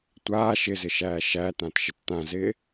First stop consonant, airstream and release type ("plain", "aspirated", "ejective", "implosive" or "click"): plain